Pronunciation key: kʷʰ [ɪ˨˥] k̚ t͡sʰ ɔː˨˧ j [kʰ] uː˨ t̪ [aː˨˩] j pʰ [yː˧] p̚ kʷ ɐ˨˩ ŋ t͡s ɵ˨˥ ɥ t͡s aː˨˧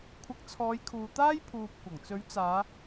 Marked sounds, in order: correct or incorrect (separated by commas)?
correct, correct, incorrect, incorrect